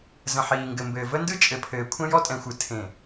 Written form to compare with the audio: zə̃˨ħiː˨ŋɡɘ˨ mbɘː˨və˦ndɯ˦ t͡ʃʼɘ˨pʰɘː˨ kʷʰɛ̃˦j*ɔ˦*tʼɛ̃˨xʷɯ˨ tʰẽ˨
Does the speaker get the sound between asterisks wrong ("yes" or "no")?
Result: no